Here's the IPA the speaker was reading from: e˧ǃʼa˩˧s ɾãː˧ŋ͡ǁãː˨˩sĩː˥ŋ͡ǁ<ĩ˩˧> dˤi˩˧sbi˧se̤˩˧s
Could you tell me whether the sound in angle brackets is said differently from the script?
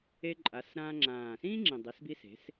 yes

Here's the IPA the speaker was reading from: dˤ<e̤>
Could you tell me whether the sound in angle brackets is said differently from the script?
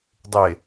yes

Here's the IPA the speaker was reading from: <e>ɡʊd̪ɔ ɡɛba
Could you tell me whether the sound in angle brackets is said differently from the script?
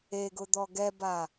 no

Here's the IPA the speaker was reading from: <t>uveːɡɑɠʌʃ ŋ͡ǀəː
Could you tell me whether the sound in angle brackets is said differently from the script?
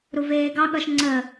yes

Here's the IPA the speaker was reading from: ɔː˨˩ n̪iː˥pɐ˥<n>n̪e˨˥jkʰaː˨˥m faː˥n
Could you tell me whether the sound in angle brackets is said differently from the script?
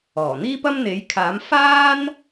yes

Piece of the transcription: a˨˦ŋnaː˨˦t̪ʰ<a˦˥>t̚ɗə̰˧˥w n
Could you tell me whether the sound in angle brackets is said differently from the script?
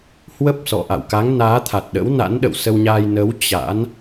yes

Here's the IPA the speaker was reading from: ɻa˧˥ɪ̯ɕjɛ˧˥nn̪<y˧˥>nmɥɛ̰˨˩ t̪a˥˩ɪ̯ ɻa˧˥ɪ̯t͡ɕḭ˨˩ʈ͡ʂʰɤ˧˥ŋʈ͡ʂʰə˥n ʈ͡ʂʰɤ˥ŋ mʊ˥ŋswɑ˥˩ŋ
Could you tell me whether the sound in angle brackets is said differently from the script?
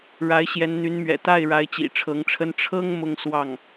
no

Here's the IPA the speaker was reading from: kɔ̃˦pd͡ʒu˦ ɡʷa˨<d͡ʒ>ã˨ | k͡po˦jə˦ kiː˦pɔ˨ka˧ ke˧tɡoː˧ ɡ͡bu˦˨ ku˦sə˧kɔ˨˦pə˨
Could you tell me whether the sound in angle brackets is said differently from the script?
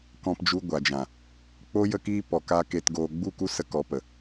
no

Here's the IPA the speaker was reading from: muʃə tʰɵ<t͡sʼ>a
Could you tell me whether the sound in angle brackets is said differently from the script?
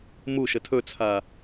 yes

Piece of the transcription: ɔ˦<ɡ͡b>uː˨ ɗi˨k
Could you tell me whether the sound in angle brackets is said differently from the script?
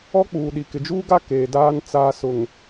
yes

